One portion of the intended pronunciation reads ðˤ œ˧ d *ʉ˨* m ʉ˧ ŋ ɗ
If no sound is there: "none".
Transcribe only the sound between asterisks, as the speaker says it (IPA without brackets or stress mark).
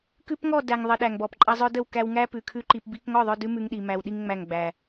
ʉ˦